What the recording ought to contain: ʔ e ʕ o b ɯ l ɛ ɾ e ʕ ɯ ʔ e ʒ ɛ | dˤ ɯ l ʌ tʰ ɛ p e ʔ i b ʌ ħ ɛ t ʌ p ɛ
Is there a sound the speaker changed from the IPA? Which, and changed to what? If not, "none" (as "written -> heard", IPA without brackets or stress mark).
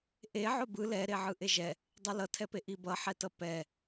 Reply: none